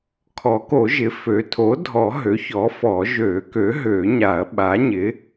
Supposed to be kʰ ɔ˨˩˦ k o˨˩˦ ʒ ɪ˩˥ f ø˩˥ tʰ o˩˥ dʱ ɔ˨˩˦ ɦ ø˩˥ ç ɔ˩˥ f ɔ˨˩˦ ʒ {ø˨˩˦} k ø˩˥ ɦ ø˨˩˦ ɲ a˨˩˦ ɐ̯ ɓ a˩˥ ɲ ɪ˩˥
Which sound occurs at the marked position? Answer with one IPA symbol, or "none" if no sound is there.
ø˨˩˦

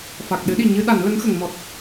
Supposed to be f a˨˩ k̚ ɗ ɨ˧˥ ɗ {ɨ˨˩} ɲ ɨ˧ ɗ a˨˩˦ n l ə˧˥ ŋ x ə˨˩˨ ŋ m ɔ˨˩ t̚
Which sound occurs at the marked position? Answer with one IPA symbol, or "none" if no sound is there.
i˨˩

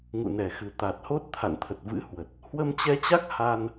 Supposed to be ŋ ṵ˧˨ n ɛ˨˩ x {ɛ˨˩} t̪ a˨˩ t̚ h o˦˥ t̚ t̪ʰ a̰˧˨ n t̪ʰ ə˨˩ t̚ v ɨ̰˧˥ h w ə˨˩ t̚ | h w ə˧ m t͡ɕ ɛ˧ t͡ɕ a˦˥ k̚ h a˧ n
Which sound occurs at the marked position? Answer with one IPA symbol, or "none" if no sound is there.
ɨ˨˩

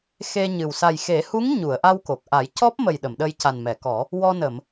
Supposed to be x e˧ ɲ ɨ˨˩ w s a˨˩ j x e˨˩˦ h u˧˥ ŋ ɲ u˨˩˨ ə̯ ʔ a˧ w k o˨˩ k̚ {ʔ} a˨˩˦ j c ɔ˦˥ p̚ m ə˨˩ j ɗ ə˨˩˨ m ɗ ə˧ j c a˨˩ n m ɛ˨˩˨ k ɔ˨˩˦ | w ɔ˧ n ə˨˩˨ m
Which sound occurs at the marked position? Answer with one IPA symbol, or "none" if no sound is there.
ʔ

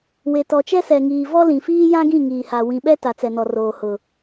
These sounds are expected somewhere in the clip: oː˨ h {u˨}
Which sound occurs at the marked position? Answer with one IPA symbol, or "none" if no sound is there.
ʊ˨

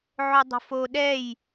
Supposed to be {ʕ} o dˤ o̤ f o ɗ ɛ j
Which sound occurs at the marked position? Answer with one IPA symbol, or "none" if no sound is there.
ʕ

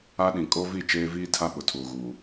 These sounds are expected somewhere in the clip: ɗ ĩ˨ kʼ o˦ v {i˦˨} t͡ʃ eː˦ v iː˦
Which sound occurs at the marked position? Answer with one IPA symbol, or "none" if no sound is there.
i˦˨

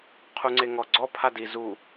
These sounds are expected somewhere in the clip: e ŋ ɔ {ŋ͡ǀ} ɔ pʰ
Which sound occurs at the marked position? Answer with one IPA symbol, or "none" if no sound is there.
ɡ͡ǀ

